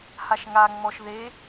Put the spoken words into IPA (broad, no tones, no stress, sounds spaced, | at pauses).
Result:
h a ʃ ŋ a ŋ͡m ɔ ʃ ð e